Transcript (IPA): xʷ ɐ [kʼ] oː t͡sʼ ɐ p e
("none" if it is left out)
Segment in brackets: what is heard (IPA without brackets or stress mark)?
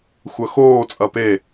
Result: x